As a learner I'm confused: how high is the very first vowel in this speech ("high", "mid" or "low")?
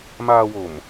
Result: low